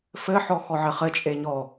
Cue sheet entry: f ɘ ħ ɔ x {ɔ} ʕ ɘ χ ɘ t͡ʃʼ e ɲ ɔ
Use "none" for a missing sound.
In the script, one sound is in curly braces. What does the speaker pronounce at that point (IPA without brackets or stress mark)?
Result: ɔ